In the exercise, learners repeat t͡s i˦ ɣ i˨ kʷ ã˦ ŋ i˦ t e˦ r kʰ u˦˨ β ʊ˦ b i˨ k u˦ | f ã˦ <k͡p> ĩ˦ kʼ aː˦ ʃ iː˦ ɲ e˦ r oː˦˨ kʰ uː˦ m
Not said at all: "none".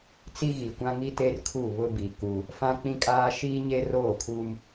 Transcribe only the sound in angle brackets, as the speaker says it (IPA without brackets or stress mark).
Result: k͡p